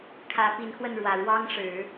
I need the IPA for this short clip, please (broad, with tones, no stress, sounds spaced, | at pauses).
kʰ ä˧˥ p i˧˥ n x w ə˥˩ n ɻ w ä˨˩ ɻ w ɑ˥ ŋ ʂ ɻ̩˨˩˦